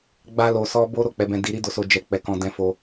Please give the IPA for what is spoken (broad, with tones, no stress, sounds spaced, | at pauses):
ɡ͡b a˧ l o˨ s ɔ˧ b o˧ ɾ o˦ k͡p ɛ˦ b ɛ̃˦ d i˧ ɾ i˦ d o˧ s o˧ d͡ʒ ɛ˧ k͡p ɛ˧ k ɔ̃˧ d ɛ̃˧ f o˧